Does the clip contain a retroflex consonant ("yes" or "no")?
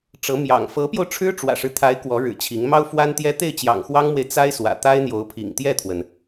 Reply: yes